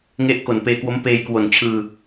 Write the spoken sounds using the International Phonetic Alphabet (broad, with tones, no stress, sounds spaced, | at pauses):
ŋ e˥˩ ʔ k o˨˩ n p eː˧ k w o˦˥ m p eː˧ j k w o˨˩ n t͡ɕʰ ɯː˧